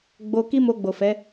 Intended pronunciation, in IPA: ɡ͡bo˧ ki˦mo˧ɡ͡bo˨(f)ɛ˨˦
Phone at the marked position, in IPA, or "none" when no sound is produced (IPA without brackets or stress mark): f